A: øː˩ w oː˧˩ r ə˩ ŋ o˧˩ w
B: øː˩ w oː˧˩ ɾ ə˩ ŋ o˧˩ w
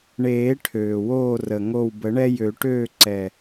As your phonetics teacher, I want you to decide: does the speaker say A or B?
A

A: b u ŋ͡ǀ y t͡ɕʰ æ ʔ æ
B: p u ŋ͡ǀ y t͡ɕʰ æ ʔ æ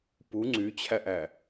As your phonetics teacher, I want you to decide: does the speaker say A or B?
B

